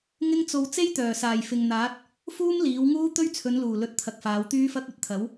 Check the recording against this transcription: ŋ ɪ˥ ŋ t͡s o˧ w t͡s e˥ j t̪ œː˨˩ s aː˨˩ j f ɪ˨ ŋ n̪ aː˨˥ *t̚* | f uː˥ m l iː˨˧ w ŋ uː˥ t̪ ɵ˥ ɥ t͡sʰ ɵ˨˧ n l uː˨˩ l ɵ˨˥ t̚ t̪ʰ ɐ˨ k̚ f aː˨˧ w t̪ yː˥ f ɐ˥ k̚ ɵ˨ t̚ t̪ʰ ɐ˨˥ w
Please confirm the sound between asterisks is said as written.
yes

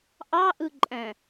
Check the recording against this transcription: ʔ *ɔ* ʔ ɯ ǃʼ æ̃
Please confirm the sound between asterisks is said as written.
no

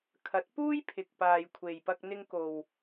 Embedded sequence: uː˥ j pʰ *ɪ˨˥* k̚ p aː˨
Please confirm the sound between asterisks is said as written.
no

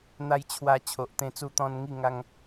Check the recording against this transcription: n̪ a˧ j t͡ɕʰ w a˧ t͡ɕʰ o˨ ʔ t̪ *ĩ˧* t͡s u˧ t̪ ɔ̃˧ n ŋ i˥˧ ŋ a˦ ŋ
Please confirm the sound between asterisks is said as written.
no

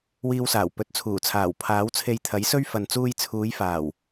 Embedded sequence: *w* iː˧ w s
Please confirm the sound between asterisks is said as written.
yes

